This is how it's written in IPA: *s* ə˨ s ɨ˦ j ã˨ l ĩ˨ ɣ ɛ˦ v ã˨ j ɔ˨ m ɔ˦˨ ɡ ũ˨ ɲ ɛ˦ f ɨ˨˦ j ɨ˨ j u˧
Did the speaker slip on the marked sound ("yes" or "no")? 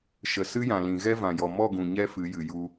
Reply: yes